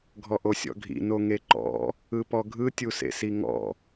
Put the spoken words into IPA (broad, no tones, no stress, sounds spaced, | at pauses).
ɡʱ ɔ ʔ o sʲ ɔ̰ ɡʱ ḭ n o ŋ e ǃ ɔ̰ | ɯ p ɔ ɡʱ ɯ tʲ u s ḛ s i ŋ ɔ̰